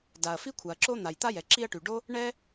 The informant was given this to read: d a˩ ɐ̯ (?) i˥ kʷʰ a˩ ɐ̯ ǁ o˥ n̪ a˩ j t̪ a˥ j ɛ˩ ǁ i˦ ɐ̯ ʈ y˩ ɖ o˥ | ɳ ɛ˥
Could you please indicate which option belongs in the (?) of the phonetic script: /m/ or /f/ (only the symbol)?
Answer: f